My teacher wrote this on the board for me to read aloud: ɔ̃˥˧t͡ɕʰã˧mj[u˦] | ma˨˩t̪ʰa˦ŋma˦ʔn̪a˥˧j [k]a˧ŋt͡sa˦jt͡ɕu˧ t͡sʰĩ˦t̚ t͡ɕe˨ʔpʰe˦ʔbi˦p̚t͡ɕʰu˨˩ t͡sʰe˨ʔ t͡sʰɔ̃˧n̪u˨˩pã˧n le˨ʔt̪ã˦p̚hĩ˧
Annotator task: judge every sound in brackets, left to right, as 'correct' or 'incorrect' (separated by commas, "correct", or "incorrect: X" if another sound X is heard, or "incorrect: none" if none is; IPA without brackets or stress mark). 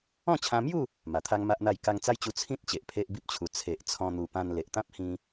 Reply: incorrect: u˥˧, correct